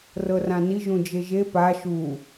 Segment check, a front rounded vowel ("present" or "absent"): absent